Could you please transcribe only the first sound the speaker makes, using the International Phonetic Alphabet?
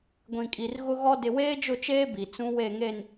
ɡʷ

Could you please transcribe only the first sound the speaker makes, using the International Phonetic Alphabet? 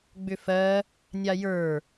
ɡ͡b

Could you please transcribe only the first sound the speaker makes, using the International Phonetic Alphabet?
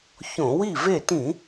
ç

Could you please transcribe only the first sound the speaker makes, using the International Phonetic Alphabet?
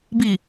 b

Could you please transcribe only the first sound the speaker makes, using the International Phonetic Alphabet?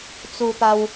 t͡s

